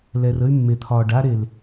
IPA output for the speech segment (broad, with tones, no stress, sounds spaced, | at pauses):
l ɛ˨ r ə˦ y̯ mː e˨ t̪ʰ ɒː˨ ɖ a˦ ɾ e˨ l